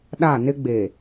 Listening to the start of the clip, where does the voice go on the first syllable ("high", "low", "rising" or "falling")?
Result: falling